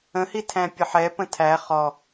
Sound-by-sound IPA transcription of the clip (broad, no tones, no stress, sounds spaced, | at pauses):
ə̃ h i tʰ æ̃ pʲ ə ħ ɛ p ə̃ tʰ æ χ ɔ